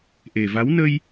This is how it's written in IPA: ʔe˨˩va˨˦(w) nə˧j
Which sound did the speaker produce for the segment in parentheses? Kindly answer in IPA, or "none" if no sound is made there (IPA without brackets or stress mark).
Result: w